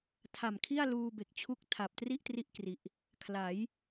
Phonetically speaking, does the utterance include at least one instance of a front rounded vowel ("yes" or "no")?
no